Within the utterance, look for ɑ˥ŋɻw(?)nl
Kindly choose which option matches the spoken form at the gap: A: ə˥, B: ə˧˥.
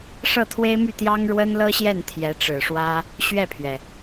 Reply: A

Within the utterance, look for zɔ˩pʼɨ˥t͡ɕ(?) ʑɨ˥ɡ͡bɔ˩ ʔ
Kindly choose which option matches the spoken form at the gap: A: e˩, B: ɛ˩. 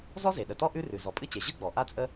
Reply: A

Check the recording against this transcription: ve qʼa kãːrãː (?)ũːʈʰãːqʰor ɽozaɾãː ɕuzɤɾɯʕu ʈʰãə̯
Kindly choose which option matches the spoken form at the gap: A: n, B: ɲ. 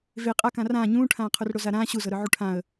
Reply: B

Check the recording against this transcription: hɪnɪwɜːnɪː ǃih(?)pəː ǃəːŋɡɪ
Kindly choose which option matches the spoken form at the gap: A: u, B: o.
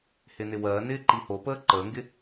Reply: B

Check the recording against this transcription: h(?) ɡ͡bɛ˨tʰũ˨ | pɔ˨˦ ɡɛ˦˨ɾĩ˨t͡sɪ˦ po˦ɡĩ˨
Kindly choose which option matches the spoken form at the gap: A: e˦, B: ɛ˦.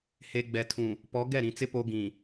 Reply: A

